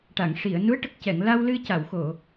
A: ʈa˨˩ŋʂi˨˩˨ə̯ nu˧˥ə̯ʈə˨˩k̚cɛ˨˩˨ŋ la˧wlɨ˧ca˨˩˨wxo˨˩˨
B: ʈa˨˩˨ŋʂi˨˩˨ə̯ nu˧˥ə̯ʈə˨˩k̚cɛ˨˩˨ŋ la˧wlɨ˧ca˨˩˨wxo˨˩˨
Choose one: B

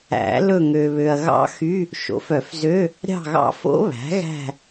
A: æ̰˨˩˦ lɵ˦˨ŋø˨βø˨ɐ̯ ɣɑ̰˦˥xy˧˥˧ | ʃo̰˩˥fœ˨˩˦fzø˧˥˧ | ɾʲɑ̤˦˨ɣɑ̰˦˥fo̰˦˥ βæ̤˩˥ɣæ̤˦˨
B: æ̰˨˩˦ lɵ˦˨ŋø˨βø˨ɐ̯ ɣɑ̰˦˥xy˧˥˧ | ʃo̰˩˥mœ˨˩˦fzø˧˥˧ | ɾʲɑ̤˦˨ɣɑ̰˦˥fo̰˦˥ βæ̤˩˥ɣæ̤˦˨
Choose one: A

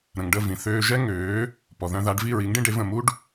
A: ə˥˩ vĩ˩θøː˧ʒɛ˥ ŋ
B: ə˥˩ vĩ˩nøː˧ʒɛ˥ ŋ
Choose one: A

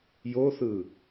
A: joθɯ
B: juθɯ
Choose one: A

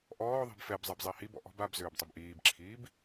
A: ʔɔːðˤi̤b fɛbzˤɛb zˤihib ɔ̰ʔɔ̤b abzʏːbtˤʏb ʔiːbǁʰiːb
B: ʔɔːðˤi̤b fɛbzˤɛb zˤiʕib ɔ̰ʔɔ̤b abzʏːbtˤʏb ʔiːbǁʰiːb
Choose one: A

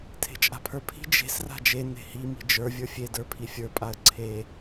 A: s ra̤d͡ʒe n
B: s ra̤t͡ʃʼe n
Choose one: A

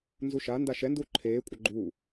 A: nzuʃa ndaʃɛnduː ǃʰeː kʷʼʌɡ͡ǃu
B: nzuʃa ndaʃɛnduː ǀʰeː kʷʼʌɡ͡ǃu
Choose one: A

